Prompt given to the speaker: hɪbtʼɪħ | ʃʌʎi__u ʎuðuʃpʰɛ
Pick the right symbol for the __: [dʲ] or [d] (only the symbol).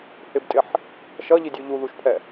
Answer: dʲ